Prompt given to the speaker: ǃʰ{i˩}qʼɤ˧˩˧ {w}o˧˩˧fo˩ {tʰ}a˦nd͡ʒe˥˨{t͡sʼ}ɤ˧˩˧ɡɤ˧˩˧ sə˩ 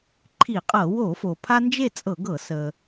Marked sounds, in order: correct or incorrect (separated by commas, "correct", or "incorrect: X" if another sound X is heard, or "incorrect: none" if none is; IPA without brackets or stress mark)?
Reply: incorrect: i˧˩˧, correct, incorrect: pʰ, correct